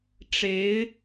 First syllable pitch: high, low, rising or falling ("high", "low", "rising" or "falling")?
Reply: rising